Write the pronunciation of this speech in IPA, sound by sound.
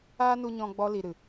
aː˦nu˧ɲɔ̃˧ ɡ͡bɔ˧ li˨ ɾɨ˨

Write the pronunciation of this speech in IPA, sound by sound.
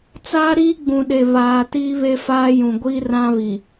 t͡saː˦ɾiː˦ɡ͡bũ˨ɗe˨ βaː˨ tiː˦βe˦faː˦ jũ˨ ɡʷiː˦rã˦βi˨

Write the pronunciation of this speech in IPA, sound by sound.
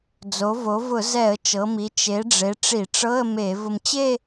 d͡zo˩˧vo˩˧ vʊ˧˩˧ zɛ˧˩˧ə̯ t͡ʃɤ˩˧mi˩˧ t͡ʃe˩˧ɖ͡ʐe˩˧ ʈ͡ʂi˧˩˧ʈ͡ʂɤ˧˥˧ə̯me˧˩˧ vʊ˧mt͡ɕe˥˧

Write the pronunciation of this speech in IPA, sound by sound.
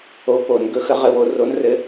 o˨˦ po˨˩˦n ɡɵ˨˩˦xə˨˩˦ ʁɘ˨˦wo˨˦ ro˨˦nrɘ˨˦

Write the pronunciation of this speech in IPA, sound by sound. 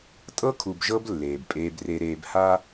tʼɤ˦kʰu˨bʒɤ˦b lːeː˨bpʼeː˦bre˦ɾeː˦b ha˦

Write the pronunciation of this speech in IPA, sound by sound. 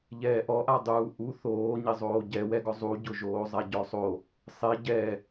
ʎɛːʔɔʔa dˤuːʔu θoːɲɪzˤoː ɟɛwɛɡɔ zˤuɟʊʒoːzˤa ɟɔsˤo | sˤe ɟɛ

